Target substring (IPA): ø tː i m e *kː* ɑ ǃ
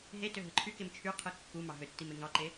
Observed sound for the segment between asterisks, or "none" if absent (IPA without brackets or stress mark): ŋ